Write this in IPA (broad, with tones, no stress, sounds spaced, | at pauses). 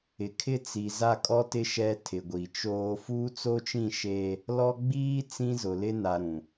ɪ˨ kʰ ɪ˦ t͡s i˨ z a˦ kʼ ɔ˦ t ɪ˦ ʃ ɛ˦ tʰ ɪ˨ ɡʷ i˨ t͡ʃ oː˦ f uː˦ t͡s o˦ t͡ʃ ĩ˦˨ ʃ e˦ | l ɔ˦ ɡ͡b iː˦ t͡s ĩ˦ z ʊ˨ l ɪ˦ n a˨ ɾ ũ˨